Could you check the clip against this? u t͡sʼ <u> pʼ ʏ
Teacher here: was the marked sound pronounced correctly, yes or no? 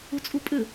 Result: yes